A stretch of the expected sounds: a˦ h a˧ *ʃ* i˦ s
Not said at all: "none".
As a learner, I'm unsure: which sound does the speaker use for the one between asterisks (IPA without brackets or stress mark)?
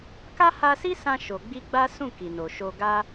s